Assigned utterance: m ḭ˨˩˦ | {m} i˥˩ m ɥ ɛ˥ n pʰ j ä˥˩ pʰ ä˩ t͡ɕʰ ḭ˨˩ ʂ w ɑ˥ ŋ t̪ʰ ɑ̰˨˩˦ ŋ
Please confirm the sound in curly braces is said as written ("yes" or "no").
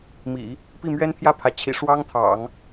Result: no